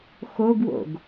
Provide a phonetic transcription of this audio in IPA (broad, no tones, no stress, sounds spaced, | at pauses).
x o ɡ w o̰ ɡ